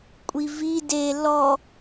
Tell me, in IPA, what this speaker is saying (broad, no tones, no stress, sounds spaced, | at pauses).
kʷʼ i v i d e l ɔ